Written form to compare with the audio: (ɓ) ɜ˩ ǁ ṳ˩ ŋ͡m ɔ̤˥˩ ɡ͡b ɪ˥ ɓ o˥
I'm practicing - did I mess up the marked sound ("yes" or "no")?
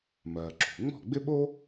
yes